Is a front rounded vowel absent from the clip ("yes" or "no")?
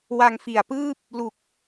yes